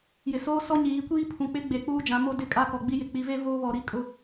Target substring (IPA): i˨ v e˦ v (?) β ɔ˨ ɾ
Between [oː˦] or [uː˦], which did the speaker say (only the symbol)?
oː˦